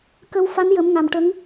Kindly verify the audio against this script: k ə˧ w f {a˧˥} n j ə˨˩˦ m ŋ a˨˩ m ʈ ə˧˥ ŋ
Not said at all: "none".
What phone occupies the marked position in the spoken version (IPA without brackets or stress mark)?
a˧˥